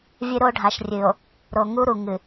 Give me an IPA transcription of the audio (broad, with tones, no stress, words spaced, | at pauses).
vʲɨ˦ɾo˦ ɖʱa˨ʃrʲɨ˨o̯ | ɾo˨ŋu˦ɾu˨ ŋɨ˨